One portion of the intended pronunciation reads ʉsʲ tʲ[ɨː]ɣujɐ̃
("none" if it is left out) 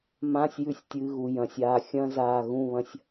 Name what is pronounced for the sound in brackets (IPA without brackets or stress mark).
ɨː